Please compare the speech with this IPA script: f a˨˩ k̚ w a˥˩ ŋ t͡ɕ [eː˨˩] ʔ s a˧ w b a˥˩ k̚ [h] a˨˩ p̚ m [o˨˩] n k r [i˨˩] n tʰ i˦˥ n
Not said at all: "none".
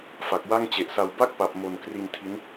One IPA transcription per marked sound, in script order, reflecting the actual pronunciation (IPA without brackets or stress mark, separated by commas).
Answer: e˨˩, p, o˨˩, i˧